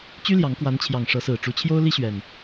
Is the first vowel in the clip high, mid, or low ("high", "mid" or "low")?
high